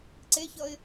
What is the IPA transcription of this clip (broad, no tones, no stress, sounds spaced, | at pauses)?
ǀ e ç ʌ ɪ̯